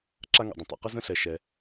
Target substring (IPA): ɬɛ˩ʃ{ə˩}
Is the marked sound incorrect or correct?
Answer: incorrect: ɛ˩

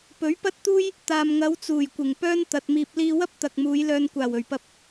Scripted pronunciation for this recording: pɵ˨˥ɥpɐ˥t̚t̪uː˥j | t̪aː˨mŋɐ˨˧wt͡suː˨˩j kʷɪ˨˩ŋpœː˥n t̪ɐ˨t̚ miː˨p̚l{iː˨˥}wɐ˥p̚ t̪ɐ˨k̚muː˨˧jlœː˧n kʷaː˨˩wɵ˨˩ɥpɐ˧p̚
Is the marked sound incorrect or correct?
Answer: incorrect: iː˧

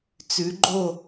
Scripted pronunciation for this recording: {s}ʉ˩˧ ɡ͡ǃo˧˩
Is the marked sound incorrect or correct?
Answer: incorrect: t͡s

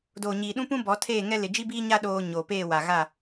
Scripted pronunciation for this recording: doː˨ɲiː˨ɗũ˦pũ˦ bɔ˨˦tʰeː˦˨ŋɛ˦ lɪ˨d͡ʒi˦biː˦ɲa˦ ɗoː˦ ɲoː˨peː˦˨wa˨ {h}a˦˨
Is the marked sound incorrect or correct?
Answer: incorrect: ɣ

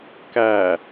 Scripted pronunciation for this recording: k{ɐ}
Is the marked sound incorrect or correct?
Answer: incorrect: æ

